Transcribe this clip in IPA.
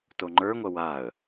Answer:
t o ŋ͡ǃ ə˞ ŋʷ ɐ w a ə̯

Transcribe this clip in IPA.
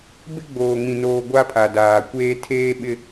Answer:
b ɪ˦ ɡ͡b oː˨ ŋ ĩ˨ n oː˨ ɡʷ a˦ pʰ a˨ d aː˨ kʷ eː˦ tʰ eː˦ ɓ ɪ˦

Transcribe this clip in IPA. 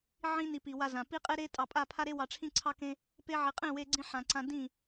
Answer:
ʕ ĩ˧ n i˨ p i˨ w a˧ z ã˨ p i˦ qʼ e˦ ɾ e˦ tʼ ɑ˧ pʼ a˦˨ pʰ a˦ ɾ e˦ w ɑ˧ ʈ͡ʂʰ ĩ˦ ǀʰ ɑ˦ k ẽ˦ | p e˧ ʕ i˨ qʼ ẽ˦˨ w e˧ ɡ͡ǀ ĩ˧ ħ ã˨ ǀ ã˧ d ĩ˦˨

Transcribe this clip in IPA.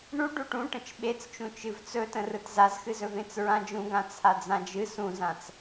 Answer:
ɳ u ɖ u ʈ ũ ʈ ə̃ t͡ʃ ɓ e t͡s t͡ʃ ũ t͡ʃ ɨ v t͡s ɵ t ə̃ r ɯ t z a z x ɨ z ɵ v ẽ t͡s ɹ ã d͡ʒ ũ ɡ ã t͡sʰ a d͡z ã d͡ʒ ɨ s ũ z ã t͡s

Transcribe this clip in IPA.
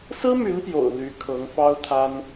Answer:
s ɹ̩˥ m y˧˥ n p j o̰˨˩ ʊ̯ l y˧˥ kʰ ɤ˧˥ ŋ f ɑ˥ ʊ̯ t̪ʰ a˥ n

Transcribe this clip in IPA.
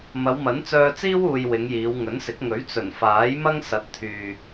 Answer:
m ɐ˨˧ w m ɐ˨˥ n t͡s œː˧ t͡s iː˥ w uː˧ j w ɪ˨˧ ŋ j iː˨˧ w ŋ ɵ˨˥ n s ɪ˨˥ k̚ ŋ ɵ˨˥ ɥ t͡s ɵ˨˩ n f aː˨˥ j m ɐ˥ ŋ s ɐ˨˥ t̚ t̪ʰ yː˨

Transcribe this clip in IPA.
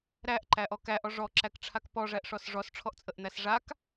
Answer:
ɾ æ ʔ ǃ æ ʔ ɔ k æ ʔ ɔ ʐ ɔ ǁ æ k ʈ͡ʂʰ a k p ɔ ʐ æ ʔ ʂ ɔ s ʐ ɔ s ʈ͡ʂʰ ɔ ʔ t͡sʼ ə ʔ n̪ æ s ʐ a k

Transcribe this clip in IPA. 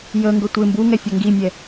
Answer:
j ə ŋ ɡ ə tʷ ɪ m b u ŋ ɛ fʲ ɔ ŋ ɡ i mʲ ɛ

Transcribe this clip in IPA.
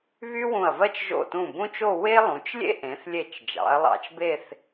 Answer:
β y˥ w ũ˧˩ ɐ̯ v ɜ˥ t͡ʃ ʒ o̰˧˩ t ũ˧˩ b ũ˥ t͡ʃ o˥˧ w e˥ lˠ ũ˩˧ t͡ʃ lʲ ḛ˥ ʔ ẽ˩˧ θ lʲ e˧˩ t͡ʃ d͡ʒ ɑ̰˩˧ ɐ̯ lˠ ɑ̰˧ t͡ʃ b e˥˧ θ

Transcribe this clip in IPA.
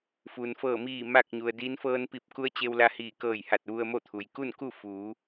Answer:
f u˩ n f ɤː˧˩ m iː˧˩ m a˥˨ k̚ ɲ u˩ ə̯ d iː˧˥ n f ɤː˧ n p i˧˩ p̚ k u˧˥ ə̯ t͡ɕ e˧ w l a˧ h iː˧˩ k ɤː˧˩ j h a˧˩ t̚ ʋ u˧ ə̯ m o˥˨ t̪ʰ u˩ j k u˥˨ n k u˥˨ f uː˩˧

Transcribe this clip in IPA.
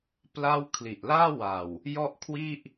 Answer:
p l a˥˩ w kʰ l i˨˩ ʔ l aː˥˩ w a˨˩ w | j ɔ˥˩ ʔ kʰ w i˥˩ ʔ

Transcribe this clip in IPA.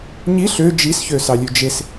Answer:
ɲ i ɬ ø d͡ʒ i s ç ø s ɑ lʲ ʉ d͡ʒ e s

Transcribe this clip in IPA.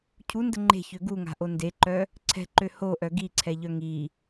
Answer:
cʰ u n d ə ŋ͡ǃ e̤ ç ø ɡ u ŋ a̤ ʔ o n d e ǃ œ | ǀʰ ɛ̤ ǃ ø h o ʔ œ ɡ i ǀʰ ɛ ʎ œ ŋ i

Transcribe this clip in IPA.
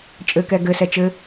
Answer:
t͡ʃʼ ɘ k ɛ ɡ ɘ s ɛ t͡ʃ ɘ

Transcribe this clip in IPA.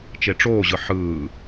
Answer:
t͡ʃ e ʈ͡ʂ oː ʑ ɯ ħ ɯː

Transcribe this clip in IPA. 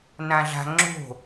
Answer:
n ã ɮ a̤ ŋ͡ǁ o̤

